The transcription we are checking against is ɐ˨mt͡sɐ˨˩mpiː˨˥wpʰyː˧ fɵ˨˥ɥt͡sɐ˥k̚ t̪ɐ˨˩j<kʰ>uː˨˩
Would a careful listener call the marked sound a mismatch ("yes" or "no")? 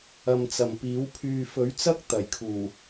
no